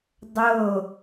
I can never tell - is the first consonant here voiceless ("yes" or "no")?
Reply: no